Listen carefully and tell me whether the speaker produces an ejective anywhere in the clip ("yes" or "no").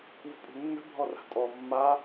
yes